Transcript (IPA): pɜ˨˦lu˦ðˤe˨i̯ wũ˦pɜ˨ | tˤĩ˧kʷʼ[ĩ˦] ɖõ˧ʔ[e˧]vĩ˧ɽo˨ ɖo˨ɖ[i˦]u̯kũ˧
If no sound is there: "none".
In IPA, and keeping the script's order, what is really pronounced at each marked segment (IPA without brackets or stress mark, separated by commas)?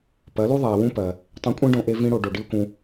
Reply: ĩ˦, e˧, i˦